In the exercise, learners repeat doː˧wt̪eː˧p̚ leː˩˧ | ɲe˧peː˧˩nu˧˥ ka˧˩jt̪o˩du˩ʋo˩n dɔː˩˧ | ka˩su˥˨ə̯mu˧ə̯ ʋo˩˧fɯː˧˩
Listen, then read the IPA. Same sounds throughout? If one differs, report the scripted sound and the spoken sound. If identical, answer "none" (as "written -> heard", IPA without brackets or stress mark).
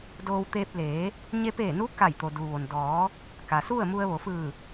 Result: none